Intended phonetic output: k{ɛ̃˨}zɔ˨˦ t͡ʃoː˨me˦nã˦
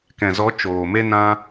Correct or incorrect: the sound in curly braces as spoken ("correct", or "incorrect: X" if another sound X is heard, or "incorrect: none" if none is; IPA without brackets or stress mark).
correct